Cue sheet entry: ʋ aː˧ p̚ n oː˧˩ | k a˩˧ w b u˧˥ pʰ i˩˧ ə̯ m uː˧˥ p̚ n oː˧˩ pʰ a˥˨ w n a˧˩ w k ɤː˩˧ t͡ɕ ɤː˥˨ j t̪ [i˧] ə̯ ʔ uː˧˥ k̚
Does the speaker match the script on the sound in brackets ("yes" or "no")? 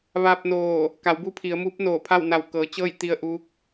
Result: yes